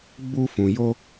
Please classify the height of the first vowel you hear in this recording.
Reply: high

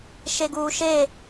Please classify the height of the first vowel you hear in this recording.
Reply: mid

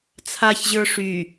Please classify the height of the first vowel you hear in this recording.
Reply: low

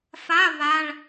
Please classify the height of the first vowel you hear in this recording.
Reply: low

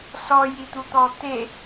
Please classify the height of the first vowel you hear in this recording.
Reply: mid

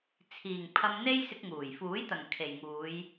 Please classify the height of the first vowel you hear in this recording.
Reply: high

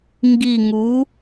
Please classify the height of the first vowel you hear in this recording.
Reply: high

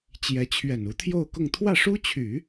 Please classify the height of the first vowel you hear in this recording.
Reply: mid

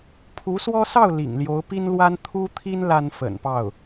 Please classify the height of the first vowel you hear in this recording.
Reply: high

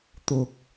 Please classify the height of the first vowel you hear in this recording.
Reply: high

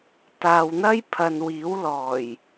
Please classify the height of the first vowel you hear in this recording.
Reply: low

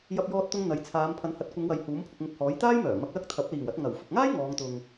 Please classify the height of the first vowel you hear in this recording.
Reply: low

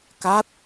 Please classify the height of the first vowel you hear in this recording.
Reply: low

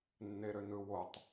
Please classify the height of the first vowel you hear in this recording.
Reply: mid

